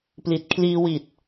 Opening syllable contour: low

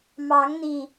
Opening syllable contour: rising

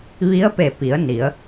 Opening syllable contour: rising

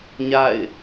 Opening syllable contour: falling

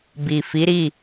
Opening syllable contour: low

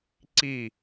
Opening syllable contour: falling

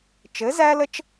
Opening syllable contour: rising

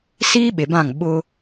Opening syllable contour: high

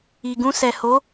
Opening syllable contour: low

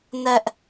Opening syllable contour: high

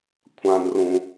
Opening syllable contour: low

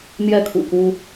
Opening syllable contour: falling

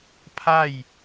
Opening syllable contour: falling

